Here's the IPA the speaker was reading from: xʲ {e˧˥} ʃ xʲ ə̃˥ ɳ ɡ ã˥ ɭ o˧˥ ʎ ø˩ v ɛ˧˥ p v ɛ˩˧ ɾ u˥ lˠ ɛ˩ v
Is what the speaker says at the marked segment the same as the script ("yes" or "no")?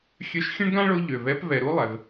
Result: no